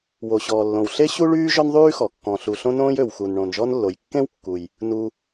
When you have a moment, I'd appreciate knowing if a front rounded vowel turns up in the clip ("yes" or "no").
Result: yes